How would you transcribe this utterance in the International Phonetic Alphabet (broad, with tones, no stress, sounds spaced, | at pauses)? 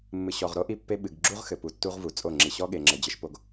mː ɨ˨ ɕ ɔ˨ ʁ ɾ o˦ ʔ i˦ pː e˦ ɓ ɨ˨ ɡ ɡ͡ǁ u˦ ʁ x ɘ˨ p u˨ tː u˦ ʁ v u˨ t͡sʼ o˦˨ ŋ͡ǁ i˨ ɕ ɔ˦ ɠ e˨ ŋ͡ǁ ɘ˨ d͡ʑ ɘ˦ ʃ p o˦ ɡ